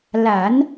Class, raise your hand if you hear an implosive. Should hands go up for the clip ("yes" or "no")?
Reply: no